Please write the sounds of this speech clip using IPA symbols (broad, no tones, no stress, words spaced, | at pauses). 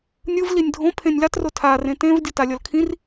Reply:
nʲɯv linʲdʱõpʰẽnʲ latro tʰarẽ tẽv dʲotalʲʌlkʰĩr